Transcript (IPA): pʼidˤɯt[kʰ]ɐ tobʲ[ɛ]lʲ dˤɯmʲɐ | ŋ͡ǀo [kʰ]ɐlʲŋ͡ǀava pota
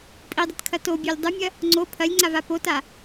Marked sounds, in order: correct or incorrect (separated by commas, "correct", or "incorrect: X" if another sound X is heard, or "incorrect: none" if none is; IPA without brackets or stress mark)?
correct, incorrect: ø, incorrect: pʰ